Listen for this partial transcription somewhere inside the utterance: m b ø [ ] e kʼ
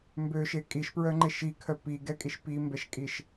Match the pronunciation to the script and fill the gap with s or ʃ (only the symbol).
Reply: ʃ